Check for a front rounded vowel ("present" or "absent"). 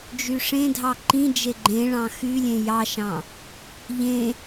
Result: present